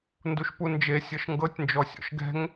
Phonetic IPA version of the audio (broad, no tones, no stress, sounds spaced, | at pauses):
n d u ʃ p u n d͡ʒ e sʲ ɤ ʃ ŋ ɡ ɤ tʲ n d͡ʒ ɔ sʲ ɔ̰ ʃ ɡ ɛ̤ ŋ